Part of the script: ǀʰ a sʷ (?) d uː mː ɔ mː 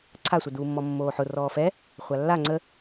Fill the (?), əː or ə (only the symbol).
ə